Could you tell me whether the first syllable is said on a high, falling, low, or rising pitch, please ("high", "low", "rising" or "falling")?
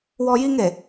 high